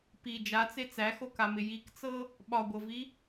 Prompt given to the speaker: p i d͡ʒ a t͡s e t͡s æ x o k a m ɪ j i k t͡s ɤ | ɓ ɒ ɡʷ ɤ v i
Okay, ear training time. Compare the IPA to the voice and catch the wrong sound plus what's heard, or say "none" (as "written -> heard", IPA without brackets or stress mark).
none